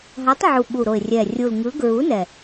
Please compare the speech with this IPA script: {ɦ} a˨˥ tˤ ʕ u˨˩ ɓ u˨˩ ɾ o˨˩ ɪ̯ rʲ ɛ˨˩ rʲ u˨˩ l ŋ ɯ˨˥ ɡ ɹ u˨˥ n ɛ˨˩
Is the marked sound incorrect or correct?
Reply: correct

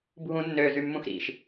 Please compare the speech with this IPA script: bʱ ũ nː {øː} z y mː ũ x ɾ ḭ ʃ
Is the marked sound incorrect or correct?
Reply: correct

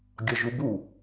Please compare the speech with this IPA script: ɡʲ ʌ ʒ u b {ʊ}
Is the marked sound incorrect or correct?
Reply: incorrect: u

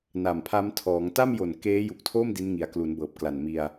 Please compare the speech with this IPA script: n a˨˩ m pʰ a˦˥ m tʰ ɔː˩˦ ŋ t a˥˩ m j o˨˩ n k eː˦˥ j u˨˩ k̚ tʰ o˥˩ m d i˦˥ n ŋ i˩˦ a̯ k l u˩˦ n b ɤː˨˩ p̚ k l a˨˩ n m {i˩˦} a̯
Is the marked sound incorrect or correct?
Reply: incorrect: i˧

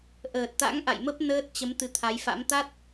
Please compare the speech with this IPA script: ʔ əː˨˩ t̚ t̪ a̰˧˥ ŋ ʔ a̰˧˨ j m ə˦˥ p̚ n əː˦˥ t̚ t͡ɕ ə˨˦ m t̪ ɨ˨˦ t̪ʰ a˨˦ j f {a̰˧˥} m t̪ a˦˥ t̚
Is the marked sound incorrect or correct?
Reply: correct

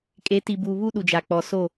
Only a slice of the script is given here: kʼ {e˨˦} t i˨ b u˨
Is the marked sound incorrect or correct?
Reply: correct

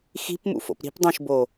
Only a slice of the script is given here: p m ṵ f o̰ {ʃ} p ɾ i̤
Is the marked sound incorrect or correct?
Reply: incorrect: none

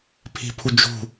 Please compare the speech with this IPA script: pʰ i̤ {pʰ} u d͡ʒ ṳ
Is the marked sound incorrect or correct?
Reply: correct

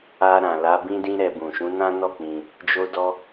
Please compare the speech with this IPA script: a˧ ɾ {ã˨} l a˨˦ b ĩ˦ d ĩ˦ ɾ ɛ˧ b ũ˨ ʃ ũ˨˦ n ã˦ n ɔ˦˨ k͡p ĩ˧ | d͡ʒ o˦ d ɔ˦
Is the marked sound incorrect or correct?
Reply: correct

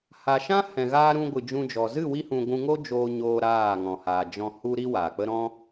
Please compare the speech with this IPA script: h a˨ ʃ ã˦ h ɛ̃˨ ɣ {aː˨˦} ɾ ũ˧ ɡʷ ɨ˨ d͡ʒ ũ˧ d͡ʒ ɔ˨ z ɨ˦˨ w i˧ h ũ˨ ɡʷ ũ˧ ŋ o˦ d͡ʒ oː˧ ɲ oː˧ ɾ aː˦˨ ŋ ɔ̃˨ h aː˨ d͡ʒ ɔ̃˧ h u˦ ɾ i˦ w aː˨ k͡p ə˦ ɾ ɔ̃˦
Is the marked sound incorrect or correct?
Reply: incorrect: aː˧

